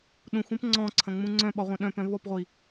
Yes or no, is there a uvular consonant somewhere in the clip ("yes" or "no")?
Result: yes